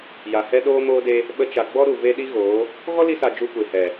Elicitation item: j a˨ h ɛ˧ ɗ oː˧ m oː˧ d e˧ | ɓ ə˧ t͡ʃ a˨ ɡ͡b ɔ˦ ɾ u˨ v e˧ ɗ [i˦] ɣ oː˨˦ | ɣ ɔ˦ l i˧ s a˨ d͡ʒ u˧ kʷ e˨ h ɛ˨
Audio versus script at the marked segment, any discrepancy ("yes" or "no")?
no